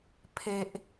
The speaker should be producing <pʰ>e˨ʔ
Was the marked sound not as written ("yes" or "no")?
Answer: no